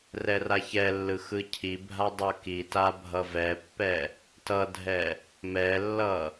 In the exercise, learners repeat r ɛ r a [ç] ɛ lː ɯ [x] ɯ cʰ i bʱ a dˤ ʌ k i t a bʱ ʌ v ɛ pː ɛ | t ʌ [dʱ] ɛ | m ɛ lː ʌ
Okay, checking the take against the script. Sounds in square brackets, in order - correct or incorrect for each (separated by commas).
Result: correct, correct, correct